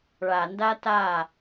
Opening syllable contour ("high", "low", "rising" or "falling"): low